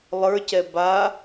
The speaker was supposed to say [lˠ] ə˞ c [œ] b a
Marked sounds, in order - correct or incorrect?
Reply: correct, incorrect: ɛ

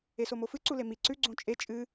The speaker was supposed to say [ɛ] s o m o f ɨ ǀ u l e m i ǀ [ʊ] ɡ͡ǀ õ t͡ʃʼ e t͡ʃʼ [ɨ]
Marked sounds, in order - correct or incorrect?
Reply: incorrect: e, incorrect: ʉ, correct

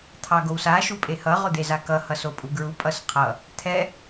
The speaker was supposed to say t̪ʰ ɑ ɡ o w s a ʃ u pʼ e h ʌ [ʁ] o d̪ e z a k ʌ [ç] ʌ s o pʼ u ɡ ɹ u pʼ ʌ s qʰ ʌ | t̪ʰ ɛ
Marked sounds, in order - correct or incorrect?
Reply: correct, incorrect: h

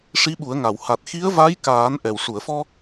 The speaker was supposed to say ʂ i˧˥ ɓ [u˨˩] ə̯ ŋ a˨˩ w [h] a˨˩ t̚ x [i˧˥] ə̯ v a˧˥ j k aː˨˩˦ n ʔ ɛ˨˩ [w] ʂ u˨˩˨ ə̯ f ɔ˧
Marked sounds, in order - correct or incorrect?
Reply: incorrect: u˨˩˦, correct, correct, correct

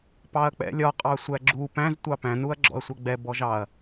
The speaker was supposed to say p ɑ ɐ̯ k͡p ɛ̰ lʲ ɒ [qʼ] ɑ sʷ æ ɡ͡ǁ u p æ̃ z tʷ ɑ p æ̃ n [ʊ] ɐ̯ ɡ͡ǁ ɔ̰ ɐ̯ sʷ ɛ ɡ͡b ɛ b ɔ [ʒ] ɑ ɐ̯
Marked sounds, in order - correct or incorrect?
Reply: correct, incorrect: u, correct

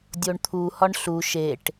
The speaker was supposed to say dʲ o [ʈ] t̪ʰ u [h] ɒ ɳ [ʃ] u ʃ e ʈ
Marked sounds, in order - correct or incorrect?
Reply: incorrect: ɳ, correct, incorrect: ɬ

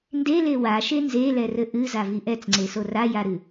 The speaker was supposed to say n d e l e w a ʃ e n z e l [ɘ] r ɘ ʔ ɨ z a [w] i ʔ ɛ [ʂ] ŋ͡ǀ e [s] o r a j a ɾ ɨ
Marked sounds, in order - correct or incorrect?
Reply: incorrect: ɛ, incorrect: v, incorrect: t͡s, correct

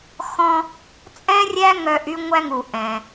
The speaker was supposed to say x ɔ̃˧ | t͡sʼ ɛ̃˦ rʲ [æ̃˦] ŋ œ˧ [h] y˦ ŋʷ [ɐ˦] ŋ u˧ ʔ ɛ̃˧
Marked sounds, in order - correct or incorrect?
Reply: incorrect: æ˦, incorrect: ʔ, incorrect: æ˦

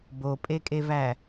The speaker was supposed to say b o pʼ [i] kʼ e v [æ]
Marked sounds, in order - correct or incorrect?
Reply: incorrect: e, correct

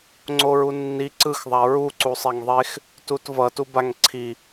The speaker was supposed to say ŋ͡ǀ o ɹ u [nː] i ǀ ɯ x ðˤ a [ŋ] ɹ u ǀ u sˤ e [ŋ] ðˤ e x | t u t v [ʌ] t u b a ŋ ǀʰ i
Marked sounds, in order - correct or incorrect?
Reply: correct, incorrect: none, correct, correct

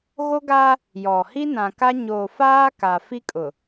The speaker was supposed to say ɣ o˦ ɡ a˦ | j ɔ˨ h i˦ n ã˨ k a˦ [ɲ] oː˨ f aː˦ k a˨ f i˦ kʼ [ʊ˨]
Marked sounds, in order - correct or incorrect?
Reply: correct, correct

